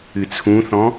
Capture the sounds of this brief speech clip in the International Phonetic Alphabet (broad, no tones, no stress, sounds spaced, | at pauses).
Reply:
ɨ t͡sʰ ũ θ ɔ̃